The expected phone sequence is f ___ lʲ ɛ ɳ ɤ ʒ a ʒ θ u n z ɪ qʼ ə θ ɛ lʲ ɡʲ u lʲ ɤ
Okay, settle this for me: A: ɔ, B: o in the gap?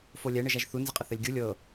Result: B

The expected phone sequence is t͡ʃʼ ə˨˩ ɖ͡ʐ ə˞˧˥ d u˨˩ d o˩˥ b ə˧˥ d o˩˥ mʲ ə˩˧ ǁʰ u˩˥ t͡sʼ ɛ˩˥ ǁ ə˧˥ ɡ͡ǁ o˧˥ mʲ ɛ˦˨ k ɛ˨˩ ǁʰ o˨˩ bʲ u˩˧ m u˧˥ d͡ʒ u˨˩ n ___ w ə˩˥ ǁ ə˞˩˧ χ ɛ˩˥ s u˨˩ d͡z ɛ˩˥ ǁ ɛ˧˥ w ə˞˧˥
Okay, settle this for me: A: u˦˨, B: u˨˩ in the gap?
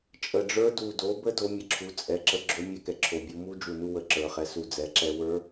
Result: A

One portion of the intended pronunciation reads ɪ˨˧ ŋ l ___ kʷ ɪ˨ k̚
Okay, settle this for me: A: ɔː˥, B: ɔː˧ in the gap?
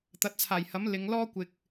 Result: A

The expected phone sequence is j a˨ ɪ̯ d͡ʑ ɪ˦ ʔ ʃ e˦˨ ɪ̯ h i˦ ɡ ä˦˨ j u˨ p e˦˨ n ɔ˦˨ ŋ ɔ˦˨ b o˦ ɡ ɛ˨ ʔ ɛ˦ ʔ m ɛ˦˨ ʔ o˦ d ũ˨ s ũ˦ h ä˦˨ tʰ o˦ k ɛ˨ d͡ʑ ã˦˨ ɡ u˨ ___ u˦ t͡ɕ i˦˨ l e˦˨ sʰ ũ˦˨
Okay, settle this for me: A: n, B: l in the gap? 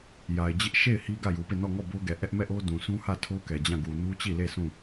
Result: A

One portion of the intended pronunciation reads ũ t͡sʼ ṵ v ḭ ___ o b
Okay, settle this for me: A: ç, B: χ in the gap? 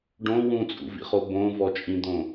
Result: B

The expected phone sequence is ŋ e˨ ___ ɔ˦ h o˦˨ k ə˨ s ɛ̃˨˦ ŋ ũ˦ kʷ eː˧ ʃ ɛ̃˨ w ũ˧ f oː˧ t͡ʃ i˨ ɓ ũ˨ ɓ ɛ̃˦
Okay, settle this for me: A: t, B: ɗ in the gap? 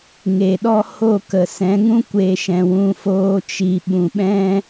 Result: B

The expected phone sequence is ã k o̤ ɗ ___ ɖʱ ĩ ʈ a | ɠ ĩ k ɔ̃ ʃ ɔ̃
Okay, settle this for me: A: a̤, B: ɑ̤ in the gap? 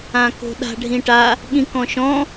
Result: A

